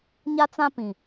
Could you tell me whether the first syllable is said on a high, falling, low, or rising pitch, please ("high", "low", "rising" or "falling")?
high